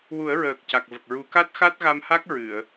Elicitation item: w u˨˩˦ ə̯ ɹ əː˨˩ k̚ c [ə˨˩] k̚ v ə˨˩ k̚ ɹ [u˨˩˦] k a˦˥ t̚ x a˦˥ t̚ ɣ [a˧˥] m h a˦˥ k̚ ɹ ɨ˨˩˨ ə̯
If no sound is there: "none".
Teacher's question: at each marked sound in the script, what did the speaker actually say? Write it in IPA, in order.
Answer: a˨˩, u˨˩˦, a˧

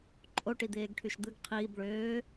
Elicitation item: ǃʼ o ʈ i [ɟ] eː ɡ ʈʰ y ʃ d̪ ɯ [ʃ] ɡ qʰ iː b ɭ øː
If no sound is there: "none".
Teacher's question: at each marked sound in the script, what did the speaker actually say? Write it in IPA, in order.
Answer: d̪, none

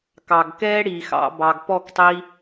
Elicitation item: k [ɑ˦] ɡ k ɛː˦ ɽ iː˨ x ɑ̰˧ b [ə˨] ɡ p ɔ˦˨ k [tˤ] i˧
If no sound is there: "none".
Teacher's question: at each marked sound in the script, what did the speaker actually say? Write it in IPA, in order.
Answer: ɑ˨, ɑ˨, tˤ

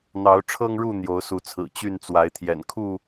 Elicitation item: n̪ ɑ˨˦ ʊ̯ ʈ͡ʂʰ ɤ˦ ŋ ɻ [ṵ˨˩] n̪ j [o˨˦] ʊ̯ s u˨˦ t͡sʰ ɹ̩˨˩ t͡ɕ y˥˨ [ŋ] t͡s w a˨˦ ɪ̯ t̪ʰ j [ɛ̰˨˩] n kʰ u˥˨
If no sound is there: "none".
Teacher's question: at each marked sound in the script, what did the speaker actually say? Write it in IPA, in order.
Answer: u˥˨, o˨˦, n, ɛ̰˨˩

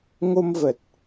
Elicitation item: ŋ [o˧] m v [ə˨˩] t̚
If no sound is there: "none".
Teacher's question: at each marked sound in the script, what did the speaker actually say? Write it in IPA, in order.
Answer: o˧, ə˨˩

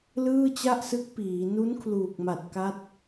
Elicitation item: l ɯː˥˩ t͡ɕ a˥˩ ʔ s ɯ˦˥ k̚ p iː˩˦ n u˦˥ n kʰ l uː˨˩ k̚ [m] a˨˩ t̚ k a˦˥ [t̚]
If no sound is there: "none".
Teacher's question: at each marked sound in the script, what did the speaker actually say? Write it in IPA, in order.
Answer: m, t̚

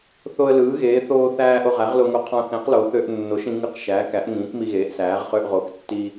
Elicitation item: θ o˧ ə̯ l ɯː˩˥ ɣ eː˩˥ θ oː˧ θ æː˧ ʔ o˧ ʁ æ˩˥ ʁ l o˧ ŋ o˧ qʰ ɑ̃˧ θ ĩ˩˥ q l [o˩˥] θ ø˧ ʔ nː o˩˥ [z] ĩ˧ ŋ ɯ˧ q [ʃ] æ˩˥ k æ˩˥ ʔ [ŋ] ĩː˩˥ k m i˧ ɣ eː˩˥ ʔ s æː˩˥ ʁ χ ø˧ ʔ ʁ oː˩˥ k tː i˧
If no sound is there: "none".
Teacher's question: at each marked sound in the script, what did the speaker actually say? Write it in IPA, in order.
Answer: o˩˥, ʃ, ʃ, ŋ

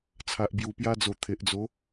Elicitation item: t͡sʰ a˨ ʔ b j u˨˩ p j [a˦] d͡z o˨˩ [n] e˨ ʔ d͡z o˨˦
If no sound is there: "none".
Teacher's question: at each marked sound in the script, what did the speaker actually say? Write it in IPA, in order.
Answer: a˧, t̪ʰ

